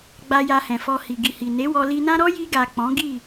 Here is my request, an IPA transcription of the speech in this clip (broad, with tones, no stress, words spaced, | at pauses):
ɡ͡ba˧ja˧hɛ̃˨fɔ˧ hi˨ɡi˨hi˨ ne˨˦wɔ˧li˧nã˦ ɾɔ˦ji˧ɡa˨ k͡pɔ̃˨˦ɡi˦˨